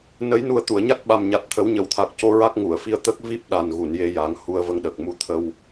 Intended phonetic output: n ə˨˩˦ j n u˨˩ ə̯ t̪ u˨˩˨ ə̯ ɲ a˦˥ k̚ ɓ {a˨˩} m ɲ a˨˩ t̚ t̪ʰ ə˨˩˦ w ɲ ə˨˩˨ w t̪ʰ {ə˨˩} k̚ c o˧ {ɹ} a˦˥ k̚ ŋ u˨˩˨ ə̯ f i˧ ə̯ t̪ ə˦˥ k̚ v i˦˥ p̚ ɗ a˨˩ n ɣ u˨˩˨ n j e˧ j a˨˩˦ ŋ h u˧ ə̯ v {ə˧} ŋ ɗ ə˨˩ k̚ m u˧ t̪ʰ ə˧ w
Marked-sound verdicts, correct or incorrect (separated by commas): correct, incorrect, correct, correct